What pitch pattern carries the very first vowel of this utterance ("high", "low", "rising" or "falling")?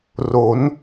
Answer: rising